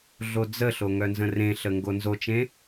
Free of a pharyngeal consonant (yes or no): yes